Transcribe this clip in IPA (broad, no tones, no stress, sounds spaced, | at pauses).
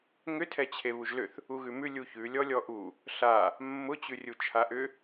ŋ ʏ tʰ ɛ t͡ɕʰ e β u ʒ l ʏ θ | u ɣ ʉ m ʉ lʲ u ç ʉ lʲ ɔ lʲ ɔ ʔ u | ɬ a | mː ʊ t͡ɕ ʉ rʲ u t͡ʃʰ a ʔ ʏ